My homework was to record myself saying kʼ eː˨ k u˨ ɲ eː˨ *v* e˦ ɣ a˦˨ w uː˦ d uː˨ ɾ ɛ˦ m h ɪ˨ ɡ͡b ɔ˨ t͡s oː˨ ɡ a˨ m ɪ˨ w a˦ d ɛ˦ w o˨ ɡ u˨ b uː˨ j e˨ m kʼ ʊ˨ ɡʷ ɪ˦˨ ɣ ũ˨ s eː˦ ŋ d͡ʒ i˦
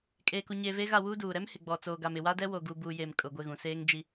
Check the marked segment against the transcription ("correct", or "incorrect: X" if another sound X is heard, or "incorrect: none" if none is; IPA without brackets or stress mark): correct